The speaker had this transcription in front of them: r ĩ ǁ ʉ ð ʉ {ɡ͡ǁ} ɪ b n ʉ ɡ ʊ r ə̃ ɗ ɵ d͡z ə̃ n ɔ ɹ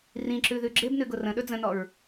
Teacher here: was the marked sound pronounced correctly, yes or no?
yes